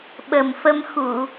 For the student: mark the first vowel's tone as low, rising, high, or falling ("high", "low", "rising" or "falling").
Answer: low